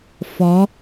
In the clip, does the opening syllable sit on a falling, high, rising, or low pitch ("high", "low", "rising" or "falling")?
rising